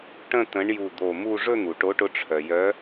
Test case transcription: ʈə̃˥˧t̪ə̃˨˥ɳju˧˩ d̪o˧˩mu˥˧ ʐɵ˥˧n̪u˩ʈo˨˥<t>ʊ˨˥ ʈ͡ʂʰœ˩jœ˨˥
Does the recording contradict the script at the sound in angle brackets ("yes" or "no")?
yes